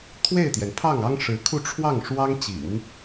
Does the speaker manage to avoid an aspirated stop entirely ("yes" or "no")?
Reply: no